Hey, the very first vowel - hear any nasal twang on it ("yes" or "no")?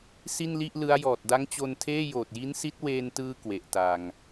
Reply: no